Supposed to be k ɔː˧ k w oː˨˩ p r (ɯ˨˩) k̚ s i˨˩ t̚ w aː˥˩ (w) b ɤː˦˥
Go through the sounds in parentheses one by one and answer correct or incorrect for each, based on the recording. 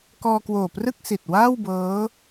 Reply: incorrect: ɯ˥˩, correct

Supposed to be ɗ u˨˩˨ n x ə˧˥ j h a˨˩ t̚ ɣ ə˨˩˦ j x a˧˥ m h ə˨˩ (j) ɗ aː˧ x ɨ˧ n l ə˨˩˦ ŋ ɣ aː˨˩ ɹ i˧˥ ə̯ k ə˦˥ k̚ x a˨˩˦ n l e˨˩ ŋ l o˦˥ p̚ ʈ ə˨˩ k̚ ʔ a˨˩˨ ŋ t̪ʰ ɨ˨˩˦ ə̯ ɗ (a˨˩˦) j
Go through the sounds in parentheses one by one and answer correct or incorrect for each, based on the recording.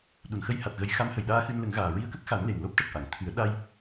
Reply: correct, incorrect: a˧

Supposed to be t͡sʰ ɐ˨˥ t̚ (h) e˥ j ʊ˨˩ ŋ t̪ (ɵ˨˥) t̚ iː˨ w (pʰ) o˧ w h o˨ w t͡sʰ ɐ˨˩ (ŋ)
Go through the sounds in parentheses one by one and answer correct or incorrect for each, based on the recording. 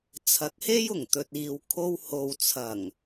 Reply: correct, incorrect: ɵ˨, incorrect: kʰ, correct

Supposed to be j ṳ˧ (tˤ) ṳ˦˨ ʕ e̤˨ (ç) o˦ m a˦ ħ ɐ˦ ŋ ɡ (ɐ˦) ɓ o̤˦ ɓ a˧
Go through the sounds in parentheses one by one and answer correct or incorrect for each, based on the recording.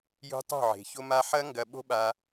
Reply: correct, correct, correct

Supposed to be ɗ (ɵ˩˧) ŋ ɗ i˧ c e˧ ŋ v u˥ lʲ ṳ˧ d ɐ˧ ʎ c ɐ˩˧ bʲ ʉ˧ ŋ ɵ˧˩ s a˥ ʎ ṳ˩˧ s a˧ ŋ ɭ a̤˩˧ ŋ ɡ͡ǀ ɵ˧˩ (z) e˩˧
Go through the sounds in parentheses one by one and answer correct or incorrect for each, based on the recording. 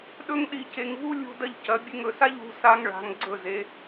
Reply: incorrect: ɵ˥, correct

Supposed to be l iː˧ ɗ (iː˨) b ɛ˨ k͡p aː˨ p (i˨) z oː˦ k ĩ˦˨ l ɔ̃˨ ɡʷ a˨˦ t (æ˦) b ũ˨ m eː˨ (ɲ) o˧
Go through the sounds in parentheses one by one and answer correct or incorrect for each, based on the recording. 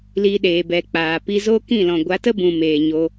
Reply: incorrect: eː˨, incorrect: i˧, incorrect: ə˦, correct

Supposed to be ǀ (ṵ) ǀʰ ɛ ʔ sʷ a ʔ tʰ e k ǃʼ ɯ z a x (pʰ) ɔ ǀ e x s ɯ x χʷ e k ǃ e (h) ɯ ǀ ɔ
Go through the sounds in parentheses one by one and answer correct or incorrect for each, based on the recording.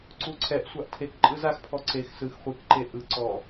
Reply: incorrect: u, correct, incorrect: ʔ

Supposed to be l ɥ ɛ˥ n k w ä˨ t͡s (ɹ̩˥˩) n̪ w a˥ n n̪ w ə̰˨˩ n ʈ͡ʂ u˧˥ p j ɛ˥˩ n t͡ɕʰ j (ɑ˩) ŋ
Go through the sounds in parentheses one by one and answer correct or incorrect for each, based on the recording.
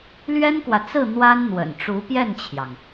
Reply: correct, correct

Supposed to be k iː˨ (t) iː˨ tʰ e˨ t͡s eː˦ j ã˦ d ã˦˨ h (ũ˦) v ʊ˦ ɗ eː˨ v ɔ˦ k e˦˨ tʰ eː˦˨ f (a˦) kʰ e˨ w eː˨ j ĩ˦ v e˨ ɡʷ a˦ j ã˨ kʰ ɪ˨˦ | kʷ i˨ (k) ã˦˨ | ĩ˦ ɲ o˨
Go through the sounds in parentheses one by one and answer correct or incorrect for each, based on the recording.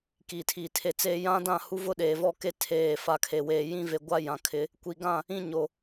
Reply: incorrect: tʰ, incorrect: u˦, incorrect: a˨, incorrect: ɡ

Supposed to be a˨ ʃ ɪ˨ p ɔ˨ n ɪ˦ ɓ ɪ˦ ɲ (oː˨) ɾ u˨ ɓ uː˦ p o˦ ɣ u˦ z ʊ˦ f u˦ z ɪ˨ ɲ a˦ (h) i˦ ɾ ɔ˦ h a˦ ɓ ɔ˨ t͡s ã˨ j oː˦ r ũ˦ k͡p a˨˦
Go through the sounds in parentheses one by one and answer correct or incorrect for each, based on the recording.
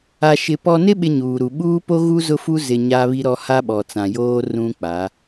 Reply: incorrect: uː˨, incorrect: β

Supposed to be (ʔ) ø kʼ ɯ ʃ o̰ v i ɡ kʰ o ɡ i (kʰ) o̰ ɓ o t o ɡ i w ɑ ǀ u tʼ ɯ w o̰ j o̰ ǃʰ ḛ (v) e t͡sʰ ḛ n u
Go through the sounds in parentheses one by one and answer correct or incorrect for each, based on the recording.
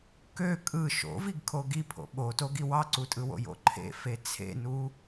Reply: incorrect: k, incorrect: pʰ, incorrect: f

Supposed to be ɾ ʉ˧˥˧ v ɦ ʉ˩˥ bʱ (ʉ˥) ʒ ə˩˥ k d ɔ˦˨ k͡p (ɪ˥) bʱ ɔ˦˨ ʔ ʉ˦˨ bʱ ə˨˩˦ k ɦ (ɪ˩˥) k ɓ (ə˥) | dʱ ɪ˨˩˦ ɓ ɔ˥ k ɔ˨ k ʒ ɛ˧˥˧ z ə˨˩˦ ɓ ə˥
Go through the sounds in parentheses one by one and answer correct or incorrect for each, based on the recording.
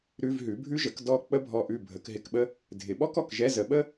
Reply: correct, incorrect: ə˥, incorrect: ɪ˧˥˧, correct

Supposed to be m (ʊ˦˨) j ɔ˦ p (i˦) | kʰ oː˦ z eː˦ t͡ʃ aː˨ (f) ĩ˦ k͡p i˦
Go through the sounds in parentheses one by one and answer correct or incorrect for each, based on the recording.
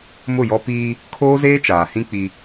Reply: correct, incorrect: iː˦, incorrect: h

